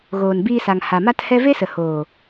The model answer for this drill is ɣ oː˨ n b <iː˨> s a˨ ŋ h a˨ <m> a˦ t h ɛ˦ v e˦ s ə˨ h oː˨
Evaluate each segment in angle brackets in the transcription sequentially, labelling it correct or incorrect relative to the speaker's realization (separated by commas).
incorrect, correct